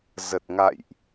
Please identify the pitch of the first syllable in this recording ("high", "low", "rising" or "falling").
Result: low